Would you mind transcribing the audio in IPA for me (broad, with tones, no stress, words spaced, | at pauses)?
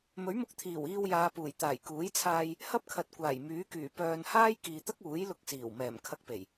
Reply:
mɵ˨˥ɥmʊ˧k̚t̪ʰiː˨˩w iː˧wjaː˨˧puː˨˩j t̪aː˨˩jkuː˨˥jt͡sʰaː˧j | hɐ˥p̚kʰɐ˨t̚ kʷaː˨˩jmyː˨˥kyː˨˩ pœː˧n haː˥jkiː˨t̪ɐ˥k̚uː˨˥j lʊ˧k̚siː˨˩wmɛː˨˩m kʰɐ˧k̚pe˨˩j